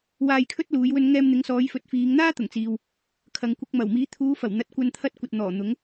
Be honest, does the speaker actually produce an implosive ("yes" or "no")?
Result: no